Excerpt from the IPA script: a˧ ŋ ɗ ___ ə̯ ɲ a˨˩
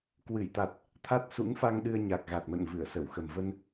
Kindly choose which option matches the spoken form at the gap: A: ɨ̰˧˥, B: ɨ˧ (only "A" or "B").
B